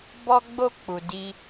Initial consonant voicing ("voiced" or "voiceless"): voiced